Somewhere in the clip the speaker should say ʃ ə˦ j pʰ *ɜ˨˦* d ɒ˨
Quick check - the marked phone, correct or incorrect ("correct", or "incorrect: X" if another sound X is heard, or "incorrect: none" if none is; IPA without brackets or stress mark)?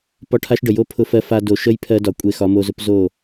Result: incorrect: ɜ˦